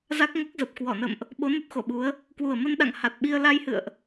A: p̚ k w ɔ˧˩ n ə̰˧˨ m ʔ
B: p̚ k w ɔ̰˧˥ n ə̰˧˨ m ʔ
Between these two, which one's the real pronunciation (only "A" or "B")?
A